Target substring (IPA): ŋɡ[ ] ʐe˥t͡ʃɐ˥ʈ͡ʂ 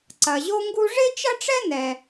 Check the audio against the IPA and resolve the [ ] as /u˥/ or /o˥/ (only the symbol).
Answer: u˥